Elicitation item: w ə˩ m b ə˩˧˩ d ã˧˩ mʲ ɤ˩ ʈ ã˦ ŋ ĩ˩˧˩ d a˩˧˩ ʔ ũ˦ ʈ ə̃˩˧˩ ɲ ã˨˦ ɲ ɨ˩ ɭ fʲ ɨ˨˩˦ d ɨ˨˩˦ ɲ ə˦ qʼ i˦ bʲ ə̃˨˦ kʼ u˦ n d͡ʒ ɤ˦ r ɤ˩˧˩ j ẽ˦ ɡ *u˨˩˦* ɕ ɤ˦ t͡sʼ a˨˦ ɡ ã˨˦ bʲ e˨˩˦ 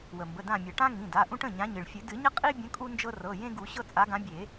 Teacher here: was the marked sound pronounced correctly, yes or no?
yes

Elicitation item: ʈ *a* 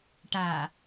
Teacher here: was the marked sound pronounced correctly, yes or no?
yes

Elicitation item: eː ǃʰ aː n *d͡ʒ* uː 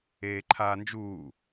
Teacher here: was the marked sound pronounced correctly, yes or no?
yes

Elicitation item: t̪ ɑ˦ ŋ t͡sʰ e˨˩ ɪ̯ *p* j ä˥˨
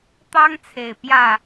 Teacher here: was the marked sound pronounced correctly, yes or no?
yes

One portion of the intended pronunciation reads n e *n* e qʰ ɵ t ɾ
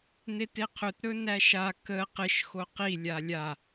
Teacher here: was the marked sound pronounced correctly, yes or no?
no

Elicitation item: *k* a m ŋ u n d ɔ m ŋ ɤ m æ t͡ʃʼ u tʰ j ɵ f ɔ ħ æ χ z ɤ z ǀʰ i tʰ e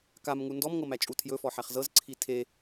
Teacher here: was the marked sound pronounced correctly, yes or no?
yes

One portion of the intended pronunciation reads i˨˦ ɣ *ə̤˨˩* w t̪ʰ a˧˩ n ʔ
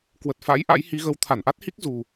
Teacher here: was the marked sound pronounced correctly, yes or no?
no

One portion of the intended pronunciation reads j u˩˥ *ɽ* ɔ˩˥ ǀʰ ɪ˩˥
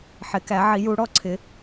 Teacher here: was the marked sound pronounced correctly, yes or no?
yes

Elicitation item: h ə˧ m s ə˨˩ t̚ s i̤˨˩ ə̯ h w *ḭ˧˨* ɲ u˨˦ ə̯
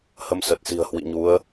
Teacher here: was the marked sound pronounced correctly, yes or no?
yes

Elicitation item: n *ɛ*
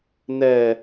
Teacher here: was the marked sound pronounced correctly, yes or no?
yes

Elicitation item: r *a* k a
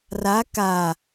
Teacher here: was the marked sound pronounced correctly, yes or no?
yes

